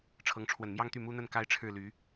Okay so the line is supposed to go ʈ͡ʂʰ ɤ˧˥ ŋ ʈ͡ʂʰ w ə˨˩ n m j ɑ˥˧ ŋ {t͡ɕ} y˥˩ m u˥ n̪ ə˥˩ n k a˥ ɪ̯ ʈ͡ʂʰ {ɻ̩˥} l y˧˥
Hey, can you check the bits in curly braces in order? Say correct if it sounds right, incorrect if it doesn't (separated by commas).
incorrect, incorrect